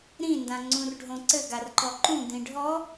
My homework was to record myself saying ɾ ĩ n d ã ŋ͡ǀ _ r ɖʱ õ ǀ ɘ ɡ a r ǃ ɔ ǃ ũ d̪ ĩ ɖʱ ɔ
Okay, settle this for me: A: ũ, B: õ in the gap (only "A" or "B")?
A